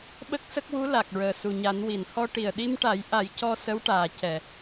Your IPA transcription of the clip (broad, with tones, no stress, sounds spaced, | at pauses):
ɓ ə˦˥ k̚ s ə˦˥ k̚ w u˧˥ l a˨˩ k̚ ɹ əː˨˩ s u˨˩ ɲ a˨˩˦ n w i˨˩˨ n h ɔ˧ ʈ i˨˩ ə̯ ɗ i˧ m ʈ a˨˩˦ j ʔ a˨˩˦ j c ɔ˧ s ə˧˥ w ʈ aː˨˩ c ɛ˨˩˨